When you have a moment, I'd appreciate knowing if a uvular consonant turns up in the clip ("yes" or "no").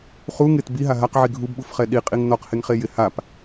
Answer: yes